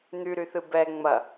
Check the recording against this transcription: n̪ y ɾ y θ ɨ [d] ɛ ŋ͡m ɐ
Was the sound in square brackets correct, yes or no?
no